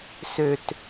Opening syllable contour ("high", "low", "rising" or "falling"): low